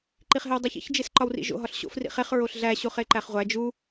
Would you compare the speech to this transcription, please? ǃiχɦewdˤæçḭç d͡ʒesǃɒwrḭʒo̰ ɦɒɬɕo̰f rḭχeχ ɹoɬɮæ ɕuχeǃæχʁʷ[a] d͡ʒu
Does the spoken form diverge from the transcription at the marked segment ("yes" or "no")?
yes